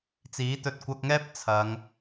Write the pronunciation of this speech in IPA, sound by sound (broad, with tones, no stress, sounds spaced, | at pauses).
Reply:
t͡s iː˨˥ t̪ ɵ˧ t̚ kʷ ɐ˧ k̚ ŋ ɛː˥ p̚ t͡sʰ ɐ˨˧ ŋ